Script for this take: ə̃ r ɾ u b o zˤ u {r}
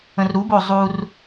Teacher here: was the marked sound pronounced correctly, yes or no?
yes